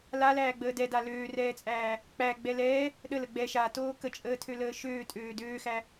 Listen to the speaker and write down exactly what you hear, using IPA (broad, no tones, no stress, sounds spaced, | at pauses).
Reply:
l a l æː ɡ͡b əː d ɛ d a l øː r ɛː t͡sʼ æː | k͡p æ ɡ͡b ɛ l ɛː | ɗ ə l ə ɡ͡b ɛ ʃ a t oː k ə t͡ʃʼ əː tʰ ø l əː ʃ øː tʼ øː d øː x æ